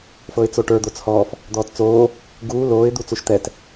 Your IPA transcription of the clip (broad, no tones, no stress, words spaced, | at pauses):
fɤɪ̯t͡soʈə˞ d̪ot͡shɔːf | d̪ɔːtt͡soː | ɡuː loːɪ̯ d̪ut͡suʃt̪ɛt